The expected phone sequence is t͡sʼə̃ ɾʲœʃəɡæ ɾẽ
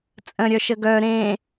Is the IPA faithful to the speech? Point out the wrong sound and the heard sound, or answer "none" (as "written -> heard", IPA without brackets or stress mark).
æ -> œ